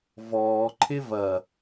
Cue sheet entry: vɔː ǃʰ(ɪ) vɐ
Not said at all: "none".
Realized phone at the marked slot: ɪ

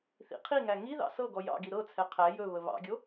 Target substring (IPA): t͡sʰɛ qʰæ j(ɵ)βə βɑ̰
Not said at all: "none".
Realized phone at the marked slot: ɵ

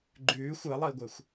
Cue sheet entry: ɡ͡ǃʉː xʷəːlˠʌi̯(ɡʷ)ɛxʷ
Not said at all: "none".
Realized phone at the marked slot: ɡʷ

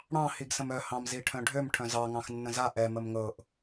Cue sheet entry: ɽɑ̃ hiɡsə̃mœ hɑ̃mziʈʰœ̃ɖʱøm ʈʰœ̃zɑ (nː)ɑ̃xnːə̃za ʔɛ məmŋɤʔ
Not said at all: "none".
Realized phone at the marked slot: ŋ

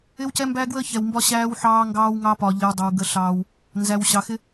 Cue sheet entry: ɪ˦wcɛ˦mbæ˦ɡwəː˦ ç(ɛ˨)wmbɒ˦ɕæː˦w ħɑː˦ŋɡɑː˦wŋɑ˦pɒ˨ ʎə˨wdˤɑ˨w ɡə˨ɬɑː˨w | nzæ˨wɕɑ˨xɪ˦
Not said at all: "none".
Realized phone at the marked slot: ɛ˨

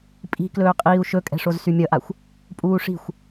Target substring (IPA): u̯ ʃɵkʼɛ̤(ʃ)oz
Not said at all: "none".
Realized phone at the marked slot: ʂ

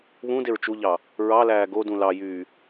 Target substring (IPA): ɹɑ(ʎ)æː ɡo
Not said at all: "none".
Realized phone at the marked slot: l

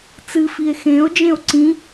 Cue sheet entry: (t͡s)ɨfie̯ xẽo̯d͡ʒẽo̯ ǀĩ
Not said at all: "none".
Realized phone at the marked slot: t͡s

